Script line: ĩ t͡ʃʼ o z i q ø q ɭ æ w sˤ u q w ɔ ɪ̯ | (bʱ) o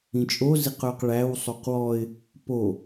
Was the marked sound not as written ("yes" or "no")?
yes